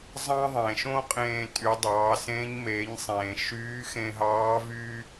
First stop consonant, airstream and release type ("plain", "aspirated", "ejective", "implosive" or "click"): ejective